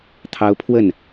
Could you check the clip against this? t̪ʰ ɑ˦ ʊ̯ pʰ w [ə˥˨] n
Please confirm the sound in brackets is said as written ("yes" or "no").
yes